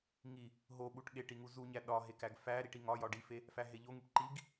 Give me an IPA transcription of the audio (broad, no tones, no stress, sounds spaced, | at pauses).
ŋ i | ɦ o ɓ u ʈ ɠ e ʈ i ŋ u z u ɲ æ ɗ ɒ ɦ e k æ ɡ f æ ɾ i ʈ i ŋ ɒ j ɒ ɖ i f e | f æ ɦ e ʎ o ŋ i ʈ ǃ i ɡ